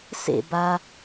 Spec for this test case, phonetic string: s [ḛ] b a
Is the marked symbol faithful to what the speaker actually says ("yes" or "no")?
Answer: yes